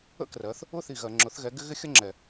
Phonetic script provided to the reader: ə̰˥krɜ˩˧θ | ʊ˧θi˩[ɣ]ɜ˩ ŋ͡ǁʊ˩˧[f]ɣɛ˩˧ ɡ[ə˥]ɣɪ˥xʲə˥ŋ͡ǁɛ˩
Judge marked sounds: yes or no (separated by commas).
yes, no, no